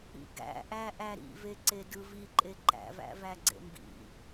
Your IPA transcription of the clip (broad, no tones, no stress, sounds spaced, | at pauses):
ḭ ɡ æ̰ ʔ æ ʔ æ ɾ ḭ v e ǀ e d ɯ v i ǃʼ e ǃ æ̰ v æ̰ v æ ɡ͡ǀ ḛ m b ḭ